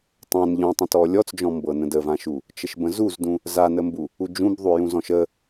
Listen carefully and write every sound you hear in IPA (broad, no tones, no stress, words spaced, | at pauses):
tˤãn ʎɔ̃tˤə̃tɔ lʲɔt͡sd͡ʒɔ̃mbɤnə̃ dəvãʃu | t͡ʃəʃbə̃zuzdũ | zanəmbu | ud͡ʒũb ðˤujũzɔ̃ʃə